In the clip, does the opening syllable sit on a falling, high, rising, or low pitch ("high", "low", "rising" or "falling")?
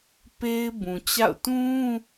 high